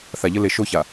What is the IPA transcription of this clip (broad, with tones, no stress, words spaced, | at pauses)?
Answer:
θa˨ʎə˦ le˨ʃo˦ça˨